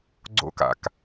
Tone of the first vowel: high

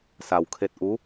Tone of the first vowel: low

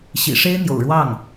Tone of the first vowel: low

